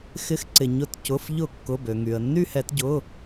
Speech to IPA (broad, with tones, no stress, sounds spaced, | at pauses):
x ɪ˨˥ x ǀ ɪ˩ ɲ ʊ˨˥ t c ʊ˩˧˩ f ʎ ʊ˧˩˧ kː ʊ˩˧˩ b ø˩ ŋ y˩ ə̯ nː y˦˨ h ɛ˧˩˧ t ɟ ʊ˩˧˩